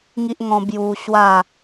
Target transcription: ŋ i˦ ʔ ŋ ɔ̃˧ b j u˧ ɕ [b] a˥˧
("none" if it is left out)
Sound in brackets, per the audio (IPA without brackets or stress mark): w